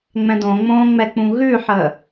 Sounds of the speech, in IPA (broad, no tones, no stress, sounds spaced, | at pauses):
ŋ͡m ɛ̃ d õ ŋ͡m õː ŋ͡m ɛ k͡p ũ ɣ ʉ ħ əː